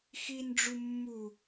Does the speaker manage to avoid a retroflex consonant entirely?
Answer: no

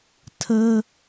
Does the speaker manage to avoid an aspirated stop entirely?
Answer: no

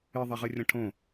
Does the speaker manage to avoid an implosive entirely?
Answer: yes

